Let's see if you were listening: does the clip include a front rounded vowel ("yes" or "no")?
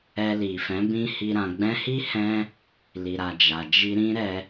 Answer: no